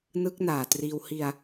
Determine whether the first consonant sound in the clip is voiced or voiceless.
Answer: voiced